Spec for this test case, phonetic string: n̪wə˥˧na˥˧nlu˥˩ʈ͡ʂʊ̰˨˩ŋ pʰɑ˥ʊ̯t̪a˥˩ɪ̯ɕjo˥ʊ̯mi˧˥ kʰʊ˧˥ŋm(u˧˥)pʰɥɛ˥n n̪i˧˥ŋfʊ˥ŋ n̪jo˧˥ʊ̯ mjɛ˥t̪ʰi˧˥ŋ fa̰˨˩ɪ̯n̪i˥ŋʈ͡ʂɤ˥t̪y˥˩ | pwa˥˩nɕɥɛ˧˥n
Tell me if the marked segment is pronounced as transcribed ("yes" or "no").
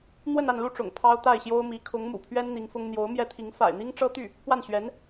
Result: no